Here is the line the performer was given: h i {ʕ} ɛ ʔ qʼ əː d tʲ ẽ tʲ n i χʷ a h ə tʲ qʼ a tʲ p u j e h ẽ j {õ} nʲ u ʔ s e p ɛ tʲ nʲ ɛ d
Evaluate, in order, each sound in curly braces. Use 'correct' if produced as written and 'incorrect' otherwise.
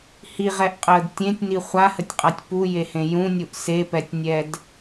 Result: incorrect: ʁ, incorrect: ũ

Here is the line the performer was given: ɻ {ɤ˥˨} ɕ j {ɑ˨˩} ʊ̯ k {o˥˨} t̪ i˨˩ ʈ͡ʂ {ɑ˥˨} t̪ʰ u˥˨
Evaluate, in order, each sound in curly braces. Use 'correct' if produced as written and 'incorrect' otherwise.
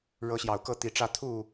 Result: incorrect: ɤ˨˦, correct, incorrect: ɤ˥˨, incorrect: ä˥˨

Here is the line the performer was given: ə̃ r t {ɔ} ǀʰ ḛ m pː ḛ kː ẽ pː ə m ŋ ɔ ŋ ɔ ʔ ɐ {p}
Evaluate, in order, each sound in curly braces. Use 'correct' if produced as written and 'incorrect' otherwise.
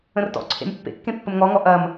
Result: incorrect: ɔ̰, incorrect: m

